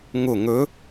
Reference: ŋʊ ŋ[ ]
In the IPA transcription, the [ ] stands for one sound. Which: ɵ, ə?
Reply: ɵ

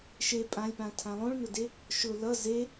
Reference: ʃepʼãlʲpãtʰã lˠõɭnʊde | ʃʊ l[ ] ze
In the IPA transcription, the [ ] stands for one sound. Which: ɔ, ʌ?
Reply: ʌ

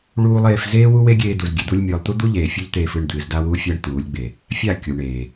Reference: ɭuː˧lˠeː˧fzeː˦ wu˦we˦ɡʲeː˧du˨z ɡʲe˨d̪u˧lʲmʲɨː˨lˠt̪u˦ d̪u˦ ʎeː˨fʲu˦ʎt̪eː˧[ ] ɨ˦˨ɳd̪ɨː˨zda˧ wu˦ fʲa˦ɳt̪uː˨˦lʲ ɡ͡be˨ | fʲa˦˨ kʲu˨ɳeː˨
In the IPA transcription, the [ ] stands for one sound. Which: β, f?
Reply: f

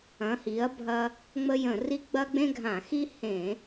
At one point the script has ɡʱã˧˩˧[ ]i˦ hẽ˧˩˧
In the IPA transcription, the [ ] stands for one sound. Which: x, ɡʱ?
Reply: x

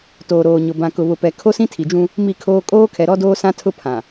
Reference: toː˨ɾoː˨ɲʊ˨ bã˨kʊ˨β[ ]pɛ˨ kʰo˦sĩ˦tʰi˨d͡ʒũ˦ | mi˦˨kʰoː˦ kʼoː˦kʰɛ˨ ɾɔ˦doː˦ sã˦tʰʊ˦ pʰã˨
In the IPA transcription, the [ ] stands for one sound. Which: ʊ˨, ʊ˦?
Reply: ʊ˨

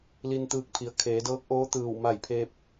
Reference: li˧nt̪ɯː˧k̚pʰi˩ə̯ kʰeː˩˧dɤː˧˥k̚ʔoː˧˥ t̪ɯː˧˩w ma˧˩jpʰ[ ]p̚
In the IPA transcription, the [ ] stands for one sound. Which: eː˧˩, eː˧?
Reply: eː˧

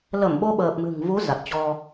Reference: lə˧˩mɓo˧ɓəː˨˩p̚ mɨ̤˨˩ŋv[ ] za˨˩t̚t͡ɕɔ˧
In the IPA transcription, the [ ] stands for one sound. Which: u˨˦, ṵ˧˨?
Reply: u˨˦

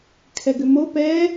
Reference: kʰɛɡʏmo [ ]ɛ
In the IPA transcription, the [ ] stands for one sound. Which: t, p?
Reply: p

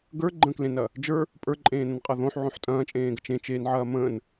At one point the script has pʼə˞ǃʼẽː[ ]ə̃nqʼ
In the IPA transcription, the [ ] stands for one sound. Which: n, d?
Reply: n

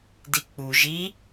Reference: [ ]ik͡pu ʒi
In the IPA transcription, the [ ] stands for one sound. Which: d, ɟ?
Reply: d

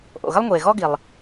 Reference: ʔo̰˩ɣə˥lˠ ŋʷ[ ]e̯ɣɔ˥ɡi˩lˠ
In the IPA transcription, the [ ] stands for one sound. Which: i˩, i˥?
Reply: i˩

